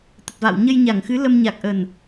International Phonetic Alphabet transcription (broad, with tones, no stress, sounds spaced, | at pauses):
t̪ ə˨˩ t̚ v a̰ː˧˨ w ɲ ə˧ j ɲ a˧˩ ŋ x ɨ˨˦ l ə˧ m ɲ a˨˩ k̚ ʔ ə˨˩ n